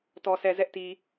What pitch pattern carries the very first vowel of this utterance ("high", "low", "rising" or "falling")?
low